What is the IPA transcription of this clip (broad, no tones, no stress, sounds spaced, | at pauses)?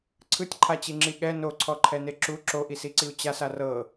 ǀʰ ɯ tʲ ǃʰ a t͡ɕ i ŋ͡ǁ i ɠ ɛ n o ǀʰ ɔ ǃʰ ɛ n e ǁ u ǁ o ʔ i s i ǀ i u̯ t͡ɕ a s a r ɤ